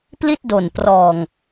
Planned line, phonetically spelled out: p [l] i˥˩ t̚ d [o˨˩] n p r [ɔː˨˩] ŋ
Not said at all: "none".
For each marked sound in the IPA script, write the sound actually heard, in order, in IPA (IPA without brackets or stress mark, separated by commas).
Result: l, o˨˩, ɔː˨˩